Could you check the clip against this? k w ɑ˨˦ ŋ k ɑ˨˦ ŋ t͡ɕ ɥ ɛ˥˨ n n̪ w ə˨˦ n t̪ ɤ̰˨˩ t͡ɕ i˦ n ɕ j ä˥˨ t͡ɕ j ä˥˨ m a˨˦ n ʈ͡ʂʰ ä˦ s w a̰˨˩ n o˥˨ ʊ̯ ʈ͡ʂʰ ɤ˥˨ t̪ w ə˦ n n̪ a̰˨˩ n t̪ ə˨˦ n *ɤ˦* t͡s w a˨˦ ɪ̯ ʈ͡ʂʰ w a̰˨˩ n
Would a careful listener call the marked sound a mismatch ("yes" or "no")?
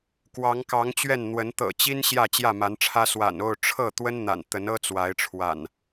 no